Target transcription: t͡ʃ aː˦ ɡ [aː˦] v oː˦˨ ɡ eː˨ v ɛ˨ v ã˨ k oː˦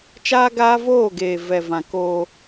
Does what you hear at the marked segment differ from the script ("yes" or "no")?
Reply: no